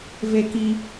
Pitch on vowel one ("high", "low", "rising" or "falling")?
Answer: low